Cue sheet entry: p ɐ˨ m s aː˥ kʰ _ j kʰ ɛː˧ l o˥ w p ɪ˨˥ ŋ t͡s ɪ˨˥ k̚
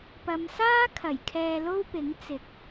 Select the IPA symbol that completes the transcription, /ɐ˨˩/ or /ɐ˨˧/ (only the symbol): ɐ˨˩